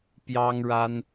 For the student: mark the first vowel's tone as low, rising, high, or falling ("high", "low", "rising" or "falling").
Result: high